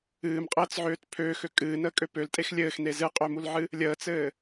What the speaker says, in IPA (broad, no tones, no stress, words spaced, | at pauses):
ɨːmqʼəːt͡sʕøːt pʰøːxø kʼɨːnəːkʼø pøltʼex lʲɘːxne zɨqʼømulʕɨ | lʲəːt͡sɘː